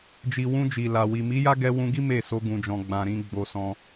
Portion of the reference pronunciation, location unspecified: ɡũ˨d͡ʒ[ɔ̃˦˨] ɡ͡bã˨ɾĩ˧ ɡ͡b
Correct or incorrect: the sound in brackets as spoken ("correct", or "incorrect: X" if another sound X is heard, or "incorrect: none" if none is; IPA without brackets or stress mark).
incorrect: ɔ̃˨